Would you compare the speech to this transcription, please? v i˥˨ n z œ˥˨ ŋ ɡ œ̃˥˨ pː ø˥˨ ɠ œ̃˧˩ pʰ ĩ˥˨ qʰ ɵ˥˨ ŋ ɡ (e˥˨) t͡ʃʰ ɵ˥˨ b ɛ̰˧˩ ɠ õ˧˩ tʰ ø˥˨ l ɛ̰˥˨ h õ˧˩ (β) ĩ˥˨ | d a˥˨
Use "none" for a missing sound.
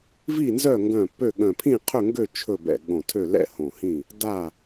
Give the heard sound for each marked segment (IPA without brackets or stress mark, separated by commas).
ø˥˨, h